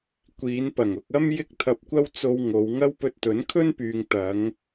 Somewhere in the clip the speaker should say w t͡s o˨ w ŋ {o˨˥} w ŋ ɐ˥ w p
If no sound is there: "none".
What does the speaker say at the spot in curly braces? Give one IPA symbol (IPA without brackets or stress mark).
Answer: o˨˧